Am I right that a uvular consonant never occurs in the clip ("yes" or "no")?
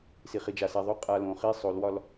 no